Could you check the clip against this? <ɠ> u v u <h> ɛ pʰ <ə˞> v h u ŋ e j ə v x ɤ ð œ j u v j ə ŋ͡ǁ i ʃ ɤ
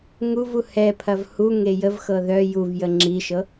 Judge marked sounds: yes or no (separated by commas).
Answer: no, yes, no